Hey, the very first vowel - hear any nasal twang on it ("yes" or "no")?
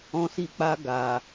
yes